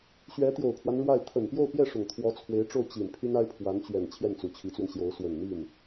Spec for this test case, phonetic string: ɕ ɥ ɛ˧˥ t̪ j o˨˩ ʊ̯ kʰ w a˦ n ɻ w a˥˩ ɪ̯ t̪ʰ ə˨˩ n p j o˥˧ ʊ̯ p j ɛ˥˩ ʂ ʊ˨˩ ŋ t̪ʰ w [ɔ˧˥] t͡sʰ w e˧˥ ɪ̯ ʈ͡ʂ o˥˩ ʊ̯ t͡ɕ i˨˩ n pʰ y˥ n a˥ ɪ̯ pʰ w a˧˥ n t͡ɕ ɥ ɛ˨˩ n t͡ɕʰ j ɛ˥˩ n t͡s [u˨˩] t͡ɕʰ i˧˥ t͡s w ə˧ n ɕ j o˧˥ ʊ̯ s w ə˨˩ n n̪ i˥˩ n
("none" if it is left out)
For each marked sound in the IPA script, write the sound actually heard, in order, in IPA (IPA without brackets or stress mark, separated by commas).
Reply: ɔ˧˥, u˨˩